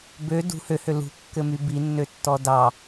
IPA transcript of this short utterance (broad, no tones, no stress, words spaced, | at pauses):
bø dṳ høhø lṳkːɘmy binːøtːɔ dɑ